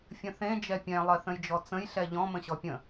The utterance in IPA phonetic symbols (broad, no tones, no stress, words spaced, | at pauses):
fʲə̃θẽ d͡ʒɛpʲɛ̃ lˠɜθə̃jd͡ʒɔt͡sə̃j ɬɛʎɔ̃ mə̃ɕɔpʲə̃